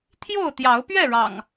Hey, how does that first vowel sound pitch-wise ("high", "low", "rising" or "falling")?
falling